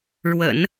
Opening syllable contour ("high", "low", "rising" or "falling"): low